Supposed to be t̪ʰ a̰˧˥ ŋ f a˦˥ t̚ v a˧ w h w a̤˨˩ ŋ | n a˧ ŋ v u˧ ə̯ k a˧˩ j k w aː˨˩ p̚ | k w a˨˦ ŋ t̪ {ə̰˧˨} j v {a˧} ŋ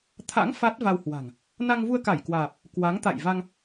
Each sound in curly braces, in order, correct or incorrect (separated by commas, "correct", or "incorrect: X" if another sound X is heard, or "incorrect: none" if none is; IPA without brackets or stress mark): incorrect: a̰˧˨, correct